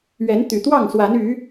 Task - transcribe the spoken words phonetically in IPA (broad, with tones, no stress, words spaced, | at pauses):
ɥɛ˨˦nt̪y˨˩ t̪wɑ˥˨ŋswa˨˦ny˨˦